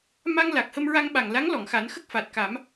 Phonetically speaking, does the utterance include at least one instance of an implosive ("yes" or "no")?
yes